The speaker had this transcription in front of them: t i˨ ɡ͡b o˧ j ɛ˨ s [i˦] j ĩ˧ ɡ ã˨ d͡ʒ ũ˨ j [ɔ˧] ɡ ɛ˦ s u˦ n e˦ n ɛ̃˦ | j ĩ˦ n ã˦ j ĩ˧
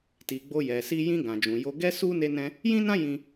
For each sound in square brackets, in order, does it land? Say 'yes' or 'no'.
no, no

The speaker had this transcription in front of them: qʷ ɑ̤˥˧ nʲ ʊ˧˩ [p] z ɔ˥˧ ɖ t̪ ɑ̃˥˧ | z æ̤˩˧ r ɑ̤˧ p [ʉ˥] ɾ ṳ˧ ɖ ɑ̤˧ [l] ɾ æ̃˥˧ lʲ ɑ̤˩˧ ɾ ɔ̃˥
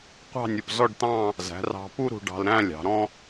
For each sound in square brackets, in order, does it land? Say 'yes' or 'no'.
yes, no, yes

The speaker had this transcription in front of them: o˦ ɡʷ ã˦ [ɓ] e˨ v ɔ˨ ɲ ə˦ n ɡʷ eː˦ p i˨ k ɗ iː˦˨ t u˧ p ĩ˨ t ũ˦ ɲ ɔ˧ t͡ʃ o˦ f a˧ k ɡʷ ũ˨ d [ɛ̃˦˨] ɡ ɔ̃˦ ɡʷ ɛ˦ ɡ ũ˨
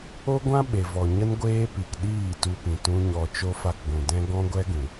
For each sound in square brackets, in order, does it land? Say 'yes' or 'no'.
yes, no

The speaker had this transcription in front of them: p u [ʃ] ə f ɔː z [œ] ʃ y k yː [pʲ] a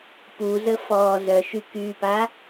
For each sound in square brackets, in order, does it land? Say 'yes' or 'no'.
no, yes, no

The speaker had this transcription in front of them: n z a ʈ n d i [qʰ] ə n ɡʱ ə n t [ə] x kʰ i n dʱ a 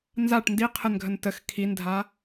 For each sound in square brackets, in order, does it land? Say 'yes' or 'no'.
yes, yes

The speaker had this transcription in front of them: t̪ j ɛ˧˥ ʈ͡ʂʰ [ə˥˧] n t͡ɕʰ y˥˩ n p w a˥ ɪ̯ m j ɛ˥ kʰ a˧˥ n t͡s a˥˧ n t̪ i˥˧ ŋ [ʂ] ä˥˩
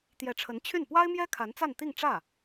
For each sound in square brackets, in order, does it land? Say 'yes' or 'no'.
no, no

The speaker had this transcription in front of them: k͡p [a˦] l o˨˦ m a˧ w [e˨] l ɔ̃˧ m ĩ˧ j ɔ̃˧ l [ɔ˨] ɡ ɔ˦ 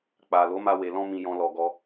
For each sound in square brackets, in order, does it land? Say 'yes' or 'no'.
no, yes, no

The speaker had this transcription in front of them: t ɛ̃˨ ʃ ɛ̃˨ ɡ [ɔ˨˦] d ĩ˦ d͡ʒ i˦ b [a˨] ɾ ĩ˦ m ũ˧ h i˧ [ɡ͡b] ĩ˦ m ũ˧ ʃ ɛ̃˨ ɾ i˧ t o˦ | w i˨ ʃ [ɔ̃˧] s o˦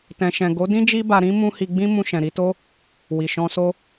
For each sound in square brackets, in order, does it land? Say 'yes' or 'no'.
no, no, yes, yes

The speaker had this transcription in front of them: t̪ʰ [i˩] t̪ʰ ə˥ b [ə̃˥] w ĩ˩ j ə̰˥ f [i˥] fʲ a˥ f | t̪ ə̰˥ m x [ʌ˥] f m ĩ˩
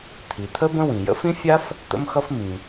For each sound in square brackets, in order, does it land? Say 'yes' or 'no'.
yes, yes, no, yes

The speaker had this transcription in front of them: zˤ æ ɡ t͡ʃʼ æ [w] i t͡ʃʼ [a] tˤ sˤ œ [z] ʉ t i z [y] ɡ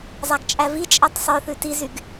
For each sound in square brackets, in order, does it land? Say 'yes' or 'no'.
no, no, no, yes

